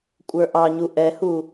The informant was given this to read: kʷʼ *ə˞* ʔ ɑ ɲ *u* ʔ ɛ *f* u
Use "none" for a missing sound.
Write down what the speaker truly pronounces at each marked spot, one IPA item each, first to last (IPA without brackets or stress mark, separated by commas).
ə˞, u, h